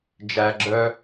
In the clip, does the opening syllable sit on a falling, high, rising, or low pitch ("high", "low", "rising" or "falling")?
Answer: low